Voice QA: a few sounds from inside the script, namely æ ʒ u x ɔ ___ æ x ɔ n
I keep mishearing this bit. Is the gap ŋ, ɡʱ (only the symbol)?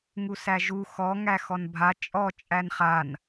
ŋ